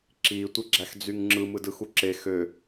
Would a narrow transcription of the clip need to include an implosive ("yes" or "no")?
no